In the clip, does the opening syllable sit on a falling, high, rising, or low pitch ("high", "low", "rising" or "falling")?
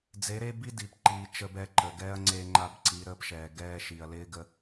rising